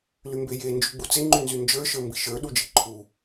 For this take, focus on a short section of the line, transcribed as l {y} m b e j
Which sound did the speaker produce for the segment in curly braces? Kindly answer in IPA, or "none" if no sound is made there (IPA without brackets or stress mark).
y